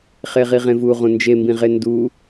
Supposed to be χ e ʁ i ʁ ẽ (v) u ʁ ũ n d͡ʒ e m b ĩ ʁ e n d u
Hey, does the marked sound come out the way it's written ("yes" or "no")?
yes